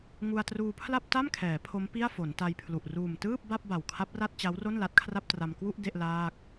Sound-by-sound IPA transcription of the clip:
ŋ u˧ a̯ t r uː˧ pʰ l a˥˩ p̚ t a˥˩ m kʰ ɛː˩˦ pʰ o˦˥ m p i˥˩ a̯ f o˩˦ n t a˧ j pʰ l u˨˩ ʔ r uː˨˩ m t ɯː˥˩ p̚ b a˥˩ p̚ b a˨˩ w kʰ a˦˥ p̚ r a˥˩ t̚ t͡ɕ a˦˥ w r o˥˩ n l a˦˥ t̚ kʰ r a˥˩ p̚ t r a˧ m k w u˥˩ ʔ d e˥˩ ʔ l aː˥˩ k̚

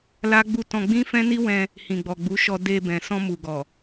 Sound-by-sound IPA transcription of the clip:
l a˦ ɡ͡b u˦ t ɔ̃˧ ɡ͡b ĩ˦ f ɛ̃˦ n i˦ w ɛ̃˧ | h ĩ˨ ɡ͡b ɔ˨ ɡ͡b u˨˦ ʃ ɔ˧ d e˧ b ɛ̃˨ s ɔ̃˧ m u˨ ɡ ɔ˨

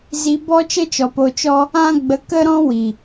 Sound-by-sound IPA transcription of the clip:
z i˧ b ɔ˦ t͡ʃ ə˦ t͡ʃ ɔ˨ p o˧ t͡ʃ ɔ˦ | ã˦ ɡ͡b ə˧ k ə˦ ɾ ɔ̃˦ w i˨

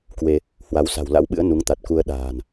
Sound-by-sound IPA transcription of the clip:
k w e˧ | h w a˨˦ w s a̤˨˩ w l a̰˧˥ w ɓ ɨ̰˧˥ ə̯ n u˨˦ ŋ t̪ a˨˩ t̚ k u˧ ə̯ ɗ a̤ː˨˩ n

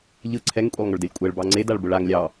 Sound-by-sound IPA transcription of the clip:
ʎ ɯ ǀʰ ɛ ŋ kʷʼ e lˠ ŋ ʊ ɭ d ɛ lʲ kʷʼ ɛ ɭ b ɑ ŋ͡ǀ e d a ɭ b ʊ ɭ a ŋ lʲ ɑ

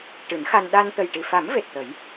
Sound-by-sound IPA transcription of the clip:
ʈ ɨ˨˩˦ n x a˧ n ɗ a˧ n t̪ ə˨˩ j ʈ i˨˩ f a˨˩˦ m v e˨˩ t̚ t̪ ə˨˩˦ j

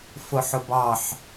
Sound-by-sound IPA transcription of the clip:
f ʊ ħ ʊ b ɑ ħ

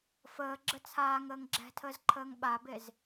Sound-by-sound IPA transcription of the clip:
f əː ɡ͡ǁ ə t͡sʰ aː ŋ əː ŋ ɡ͡ǁ ɛ̤ tʰ əː z ǃʰ əː ŋ ɓ a b e z

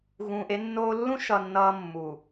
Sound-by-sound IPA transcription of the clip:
ɣ ũː˨ ʔ e˦ nː oː˦ lː ũ˦ ʃ ʌ˨ nː ʌː˦ mː u˨

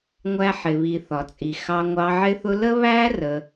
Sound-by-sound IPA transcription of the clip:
ŋʷ æ˧ ħ ɪ˨ β i˨ θ ɒ˨ t͡sʼ i˨ x ɑ˧ ŋʷ ɑ˧ ʕ ɪ˦ θ ʊ˦ l ə˦ β æ˦ r ə˧

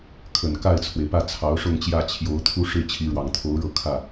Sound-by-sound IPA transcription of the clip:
kʰ ə˨˩ n k a˥˩ ɪ̯ t͡sʰ w e˩ ɪ̯ p ä˥˩ t͡sʰ ɑ˧˥ ʊ̯ ʂ ʊ˥˧ ŋ t͡ɕ j ä˥˩ t͡ɕʰ j o˧˥ ʊ̯ t̪ʰ u˥˧ ʂ ɻ̩˥˩ t͡ɕʰ i˧˥ ɻ w ɑ˨˩ ŋ t̪ʰ o˧˥ ʊ̯ ɻ ɤ˥˧ kʰ ä˥˩

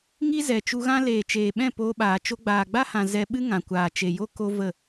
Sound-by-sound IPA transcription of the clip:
ŋ i˦ z ɛ˨ t͡ʃ u˧ ɣ ã˦ l eː˨ t͡ʃ eː˨ ɓ ɛ̃˦˨ p oː˧ ɓ aː˨ t͡ʃ o˧ ɡ͡b aː˨ ɡ͡b a˦ h ã˨ z ɛ˧ ɓ ɨ˦ ŋ ã˨ kʷ aː˨ t͡ʃ e˨ j o˦ k o˦ v ə˦˨

